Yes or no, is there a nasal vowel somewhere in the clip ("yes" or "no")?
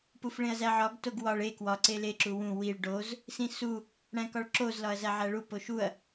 yes